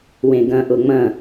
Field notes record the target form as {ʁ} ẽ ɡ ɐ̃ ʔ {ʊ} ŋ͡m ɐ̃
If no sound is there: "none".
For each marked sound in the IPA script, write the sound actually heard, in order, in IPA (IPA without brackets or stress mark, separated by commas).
w, ʊ